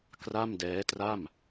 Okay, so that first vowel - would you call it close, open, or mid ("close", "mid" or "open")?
open